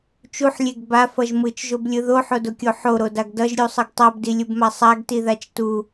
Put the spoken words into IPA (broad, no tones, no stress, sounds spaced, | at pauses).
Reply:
t͡ʃ u ħ lʲ e ɡ b a f ʌ ʒ m ɯ t͡ʃ ʒ o b lʲ ɯ ð o ħ o d o kʲ o ħ o ɾ o d a ɡ d ʌ ʒ ɾʲ u sˤ ɯ ɡ tˤ a b d i lʲ u b m a sˤ a ɡ t i ð a t͡ʃ t u